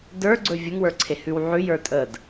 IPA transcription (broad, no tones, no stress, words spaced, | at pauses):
də˞ɡ͡ǀɵ vʲəŋ wə˞ǀʰehʉwʕʉ jə˞tʼəd